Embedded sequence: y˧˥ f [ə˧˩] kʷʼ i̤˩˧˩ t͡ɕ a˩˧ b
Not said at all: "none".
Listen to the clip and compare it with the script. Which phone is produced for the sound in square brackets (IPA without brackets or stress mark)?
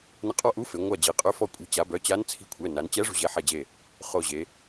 ɔ˧˩